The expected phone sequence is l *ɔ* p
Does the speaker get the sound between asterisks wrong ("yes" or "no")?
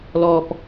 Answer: no